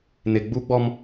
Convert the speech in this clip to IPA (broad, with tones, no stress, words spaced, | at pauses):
nɪ˨ɡ͡bu˦ɡ͡bɔ˦m